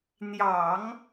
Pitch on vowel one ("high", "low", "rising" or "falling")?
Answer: low